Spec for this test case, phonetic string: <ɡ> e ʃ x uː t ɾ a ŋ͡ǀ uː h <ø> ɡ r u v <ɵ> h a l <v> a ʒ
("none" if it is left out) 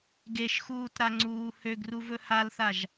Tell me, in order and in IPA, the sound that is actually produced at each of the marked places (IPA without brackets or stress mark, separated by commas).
ɡ, ø, ɵ, θ